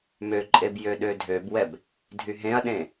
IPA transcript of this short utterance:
møǃʼeb jøɗødʱøbwɛb | dʱyɦẽɐ̯ɗẽ

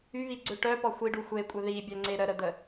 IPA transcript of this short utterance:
yβiɡ͡ǀø ʈœpɔ xʷiɖu xʷekʷʼœ ðibʲœŋ͡ǀe ɾəɾəd̪ə

